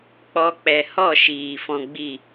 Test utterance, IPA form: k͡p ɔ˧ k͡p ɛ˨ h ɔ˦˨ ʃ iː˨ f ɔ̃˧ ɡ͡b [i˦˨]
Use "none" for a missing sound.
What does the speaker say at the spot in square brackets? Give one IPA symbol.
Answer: i˦˨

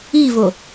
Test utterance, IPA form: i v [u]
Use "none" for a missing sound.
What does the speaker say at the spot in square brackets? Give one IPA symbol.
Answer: o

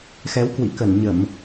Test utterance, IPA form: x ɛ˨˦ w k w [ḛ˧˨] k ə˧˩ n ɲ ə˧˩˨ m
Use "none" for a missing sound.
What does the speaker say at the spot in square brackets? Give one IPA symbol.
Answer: ḭ˧˨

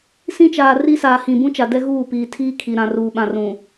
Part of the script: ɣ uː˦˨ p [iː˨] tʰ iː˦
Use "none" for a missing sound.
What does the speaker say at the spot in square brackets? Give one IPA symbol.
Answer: iː˨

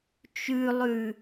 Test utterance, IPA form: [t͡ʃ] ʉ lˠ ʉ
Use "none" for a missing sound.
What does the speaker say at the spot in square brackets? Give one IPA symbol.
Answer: t͡ʃ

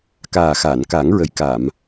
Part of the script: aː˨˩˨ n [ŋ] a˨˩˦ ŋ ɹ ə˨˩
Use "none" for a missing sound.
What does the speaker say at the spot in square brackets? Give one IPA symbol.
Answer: k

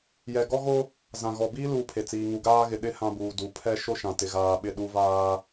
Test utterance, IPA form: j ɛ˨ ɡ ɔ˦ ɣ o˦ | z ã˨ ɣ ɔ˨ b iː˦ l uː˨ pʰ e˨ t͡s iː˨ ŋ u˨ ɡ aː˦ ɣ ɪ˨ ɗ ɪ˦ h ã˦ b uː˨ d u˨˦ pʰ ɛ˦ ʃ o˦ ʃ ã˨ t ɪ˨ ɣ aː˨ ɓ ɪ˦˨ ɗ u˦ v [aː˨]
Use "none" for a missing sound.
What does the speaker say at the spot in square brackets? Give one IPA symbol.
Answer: aː˦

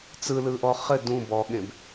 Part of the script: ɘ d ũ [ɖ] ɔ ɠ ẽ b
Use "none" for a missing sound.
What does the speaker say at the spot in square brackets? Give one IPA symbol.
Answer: b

